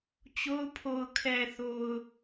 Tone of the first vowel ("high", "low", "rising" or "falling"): high